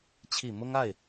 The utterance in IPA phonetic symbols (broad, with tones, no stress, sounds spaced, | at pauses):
t͡ɕʰ i˨˩ m ʊ˥ ŋ a˥˩ ɪ̯